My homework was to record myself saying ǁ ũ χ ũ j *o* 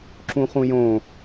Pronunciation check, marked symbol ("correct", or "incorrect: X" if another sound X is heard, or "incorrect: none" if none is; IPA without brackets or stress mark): incorrect: õ